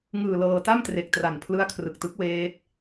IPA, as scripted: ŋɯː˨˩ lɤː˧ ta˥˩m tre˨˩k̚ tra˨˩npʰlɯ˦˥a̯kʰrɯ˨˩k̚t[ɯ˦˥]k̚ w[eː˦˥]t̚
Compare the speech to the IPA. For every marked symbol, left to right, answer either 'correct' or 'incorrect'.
correct, correct

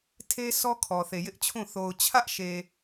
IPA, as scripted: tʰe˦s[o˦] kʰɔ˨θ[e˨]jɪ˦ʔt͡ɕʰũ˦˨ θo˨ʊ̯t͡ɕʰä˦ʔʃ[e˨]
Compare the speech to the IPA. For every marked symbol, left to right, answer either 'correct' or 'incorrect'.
incorrect, correct, correct

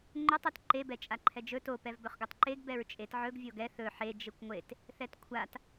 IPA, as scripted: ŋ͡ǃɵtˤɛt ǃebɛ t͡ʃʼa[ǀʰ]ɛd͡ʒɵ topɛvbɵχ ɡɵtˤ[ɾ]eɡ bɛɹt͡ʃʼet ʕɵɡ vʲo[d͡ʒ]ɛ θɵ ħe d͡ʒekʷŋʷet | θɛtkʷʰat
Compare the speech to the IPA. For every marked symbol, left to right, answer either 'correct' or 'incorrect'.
incorrect, incorrect, incorrect

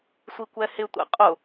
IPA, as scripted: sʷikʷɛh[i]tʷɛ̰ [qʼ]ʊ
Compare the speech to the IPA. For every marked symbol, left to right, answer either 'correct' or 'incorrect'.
incorrect, correct

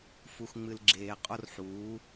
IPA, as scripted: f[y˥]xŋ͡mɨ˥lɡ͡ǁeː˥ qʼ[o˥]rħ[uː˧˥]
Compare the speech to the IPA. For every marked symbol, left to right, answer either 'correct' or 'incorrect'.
incorrect, correct, correct

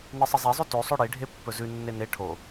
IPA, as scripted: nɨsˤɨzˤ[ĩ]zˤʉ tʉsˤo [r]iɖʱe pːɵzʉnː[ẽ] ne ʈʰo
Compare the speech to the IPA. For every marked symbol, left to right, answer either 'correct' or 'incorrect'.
incorrect, incorrect, incorrect

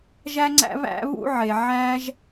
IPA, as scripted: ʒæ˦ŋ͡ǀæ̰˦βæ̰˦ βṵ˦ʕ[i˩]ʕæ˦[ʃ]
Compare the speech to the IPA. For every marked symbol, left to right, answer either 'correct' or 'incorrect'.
incorrect, incorrect

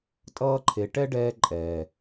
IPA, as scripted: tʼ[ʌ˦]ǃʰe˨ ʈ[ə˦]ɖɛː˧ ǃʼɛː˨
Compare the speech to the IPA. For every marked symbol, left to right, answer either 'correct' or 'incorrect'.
incorrect, incorrect

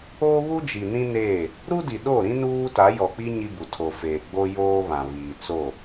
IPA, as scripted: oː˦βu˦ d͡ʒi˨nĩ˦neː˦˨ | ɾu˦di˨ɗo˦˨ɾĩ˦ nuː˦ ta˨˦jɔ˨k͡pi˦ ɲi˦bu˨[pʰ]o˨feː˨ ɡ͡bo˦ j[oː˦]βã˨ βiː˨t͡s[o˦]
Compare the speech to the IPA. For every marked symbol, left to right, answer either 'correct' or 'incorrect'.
incorrect, correct, incorrect

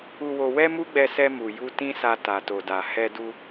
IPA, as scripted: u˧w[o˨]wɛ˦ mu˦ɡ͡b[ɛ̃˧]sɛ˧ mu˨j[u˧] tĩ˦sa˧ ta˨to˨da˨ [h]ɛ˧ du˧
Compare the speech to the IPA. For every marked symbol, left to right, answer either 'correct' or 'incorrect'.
incorrect, incorrect, correct, correct

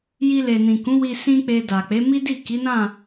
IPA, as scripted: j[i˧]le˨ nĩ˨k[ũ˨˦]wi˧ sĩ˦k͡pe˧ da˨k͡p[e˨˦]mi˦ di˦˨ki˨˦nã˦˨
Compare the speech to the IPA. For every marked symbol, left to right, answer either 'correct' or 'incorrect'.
correct, correct, correct

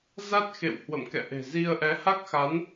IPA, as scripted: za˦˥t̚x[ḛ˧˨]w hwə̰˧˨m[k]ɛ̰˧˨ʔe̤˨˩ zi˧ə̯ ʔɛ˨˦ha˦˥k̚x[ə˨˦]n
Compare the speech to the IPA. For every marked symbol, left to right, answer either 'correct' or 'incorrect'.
correct, correct, incorrect

